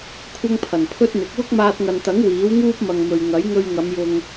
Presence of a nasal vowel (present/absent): absent